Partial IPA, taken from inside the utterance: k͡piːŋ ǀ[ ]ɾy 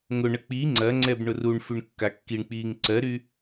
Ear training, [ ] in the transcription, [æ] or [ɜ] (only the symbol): ɜ